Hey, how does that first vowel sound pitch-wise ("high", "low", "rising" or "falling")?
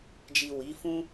low